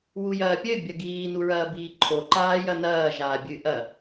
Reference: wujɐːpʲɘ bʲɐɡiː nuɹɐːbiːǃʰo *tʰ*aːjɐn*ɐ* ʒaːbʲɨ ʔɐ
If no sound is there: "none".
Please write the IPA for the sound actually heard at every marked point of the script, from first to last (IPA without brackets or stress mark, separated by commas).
ǃ, ɐː